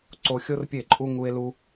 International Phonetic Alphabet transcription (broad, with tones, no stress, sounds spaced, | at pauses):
ǀ o˨ xʲ o˦ r pʲ e˦˨ ǃʼ u˦ ŋ u˧ e̯ l u˧